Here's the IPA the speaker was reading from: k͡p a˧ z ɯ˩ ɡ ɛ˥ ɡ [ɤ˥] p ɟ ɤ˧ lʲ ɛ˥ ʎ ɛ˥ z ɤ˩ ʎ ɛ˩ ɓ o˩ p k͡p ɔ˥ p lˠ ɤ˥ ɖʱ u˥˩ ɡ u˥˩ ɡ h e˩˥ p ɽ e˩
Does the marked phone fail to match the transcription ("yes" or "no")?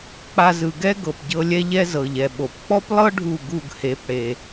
yes